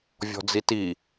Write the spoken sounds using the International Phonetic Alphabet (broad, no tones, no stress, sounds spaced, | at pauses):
vʲ ɔ̤ d͡z i t i